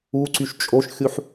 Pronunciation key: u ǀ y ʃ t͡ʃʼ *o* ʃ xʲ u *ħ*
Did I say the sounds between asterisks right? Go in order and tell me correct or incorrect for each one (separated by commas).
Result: correct, correct